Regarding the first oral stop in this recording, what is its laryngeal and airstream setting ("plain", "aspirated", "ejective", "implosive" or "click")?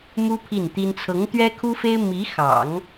aspirated